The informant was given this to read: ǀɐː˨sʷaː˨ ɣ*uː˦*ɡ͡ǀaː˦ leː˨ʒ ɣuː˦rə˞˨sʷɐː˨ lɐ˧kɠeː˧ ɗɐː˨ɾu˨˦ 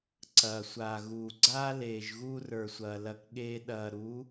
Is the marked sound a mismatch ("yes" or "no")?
yes